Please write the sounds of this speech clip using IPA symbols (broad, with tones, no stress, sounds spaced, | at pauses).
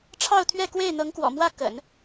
ʈ͡ʂʰ ɑ˥˧ ʊ̯ t̪ʰ ɥ ɛ˥˧ k w e˥˩ ɪ̯ n̪ ɤ˧˥ ŋ k w ɔ̰˨˩ m w ä˥˩ k ə̰˨˩˦ n